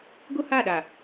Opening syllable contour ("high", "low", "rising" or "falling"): high